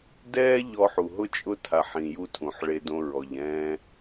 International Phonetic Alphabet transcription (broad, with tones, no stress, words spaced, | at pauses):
dɛː˦ ʎɔ˧ħu˨ ɦʊ˦t͡ʃʼʊ˦˨ tʰa˨ħĩ˨ju˧ tʰũ˨ħɭe˧dõ˧ɹɔ˨ʎ ɛ̃ː˧